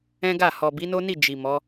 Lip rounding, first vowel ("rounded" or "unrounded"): unrounded